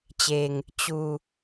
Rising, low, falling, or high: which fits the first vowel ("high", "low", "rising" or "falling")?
low